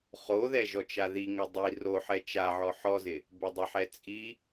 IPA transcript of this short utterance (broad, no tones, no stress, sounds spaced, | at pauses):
χ o ð ɛ ʒ ɔ t͡ʃ a ð i ŋ ɛ dˤ i r o ħ ɛ t͡ʃ a ʕ ɔ ħ ɔ z ɪ | b ɛ dˤ ɛ ħ ɛ t͡sʼ i